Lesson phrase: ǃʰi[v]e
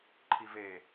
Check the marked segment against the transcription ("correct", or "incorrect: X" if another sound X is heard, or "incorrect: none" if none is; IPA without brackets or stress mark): correct